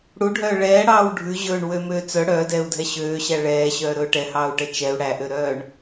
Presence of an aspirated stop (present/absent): absent